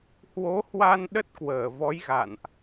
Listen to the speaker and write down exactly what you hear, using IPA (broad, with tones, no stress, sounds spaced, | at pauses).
h w o˨˦ h w a˧ n ɗ ə˦˥ t̚ k w əː˧˩ v ɔ˨˦ j ɣ a̰˧˨ n ʔ